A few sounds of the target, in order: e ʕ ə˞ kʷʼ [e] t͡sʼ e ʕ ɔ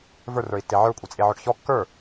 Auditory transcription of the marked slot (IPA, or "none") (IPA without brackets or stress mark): e